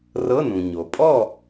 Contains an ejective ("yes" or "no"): yes